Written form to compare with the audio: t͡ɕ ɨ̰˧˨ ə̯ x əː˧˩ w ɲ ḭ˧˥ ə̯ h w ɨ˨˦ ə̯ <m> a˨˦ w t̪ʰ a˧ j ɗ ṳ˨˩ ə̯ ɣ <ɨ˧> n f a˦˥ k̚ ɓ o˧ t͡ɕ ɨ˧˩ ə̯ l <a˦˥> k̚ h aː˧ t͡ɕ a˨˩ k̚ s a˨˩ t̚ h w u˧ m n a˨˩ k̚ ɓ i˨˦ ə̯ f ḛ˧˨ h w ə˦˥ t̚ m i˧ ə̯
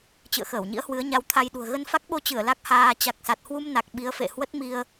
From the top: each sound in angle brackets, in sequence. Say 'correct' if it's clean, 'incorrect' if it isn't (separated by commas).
incorrect, incorrect, correct